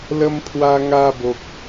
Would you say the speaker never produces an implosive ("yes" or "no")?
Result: yes